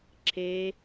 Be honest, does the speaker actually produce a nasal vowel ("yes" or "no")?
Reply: no